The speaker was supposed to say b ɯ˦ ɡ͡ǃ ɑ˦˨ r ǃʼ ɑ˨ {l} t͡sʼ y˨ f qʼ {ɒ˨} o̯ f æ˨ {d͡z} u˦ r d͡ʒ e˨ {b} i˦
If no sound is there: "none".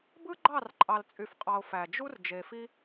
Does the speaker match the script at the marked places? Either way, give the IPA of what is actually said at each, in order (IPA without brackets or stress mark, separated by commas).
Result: l, ɑ˨, d͡ʒ, f